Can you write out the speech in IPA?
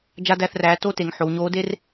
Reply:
d͡ʒ a˥ d æ˥˧ θ r æː˧˥ t o˥ t e˩˥ ŋ ħ o˩˧ w ɲ oː˧˥ d e˥ r

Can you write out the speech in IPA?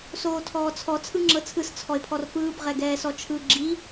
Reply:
s oː tʰ ɔː t͡sʰ ɔ t͡sʰ ɯ ŋ͡ǁ ɤ t͡sʰ ɯ s t͡sʰ ɔ e̯ pʰ ɔ r f ɯː b ʁ ɛ ɡ ɛː s ɔ t͡ʃʰ ɯ ɡ͡ǁ i

